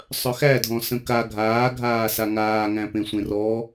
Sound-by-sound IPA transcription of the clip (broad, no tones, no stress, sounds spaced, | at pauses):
sˤ œ x æ dʱ ɔ̃ s ə̃ k a ɡʱ aː ɡʱ aː s a ŋ aː ŋ æ̃ p ẽ sʷ ẽ r ɔ